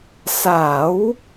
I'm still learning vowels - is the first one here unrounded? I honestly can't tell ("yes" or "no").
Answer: yes